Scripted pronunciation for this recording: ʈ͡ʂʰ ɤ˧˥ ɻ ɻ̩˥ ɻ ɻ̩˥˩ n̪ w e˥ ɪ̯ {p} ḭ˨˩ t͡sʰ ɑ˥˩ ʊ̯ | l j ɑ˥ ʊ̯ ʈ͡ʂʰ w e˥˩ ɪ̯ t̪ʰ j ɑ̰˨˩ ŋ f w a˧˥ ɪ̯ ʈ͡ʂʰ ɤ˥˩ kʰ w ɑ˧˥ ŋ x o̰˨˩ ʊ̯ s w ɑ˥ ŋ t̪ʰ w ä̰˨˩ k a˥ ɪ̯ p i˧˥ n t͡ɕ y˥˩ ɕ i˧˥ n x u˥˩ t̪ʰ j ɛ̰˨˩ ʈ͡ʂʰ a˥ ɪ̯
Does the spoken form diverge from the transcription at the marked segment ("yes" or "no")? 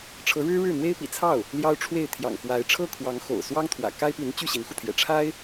no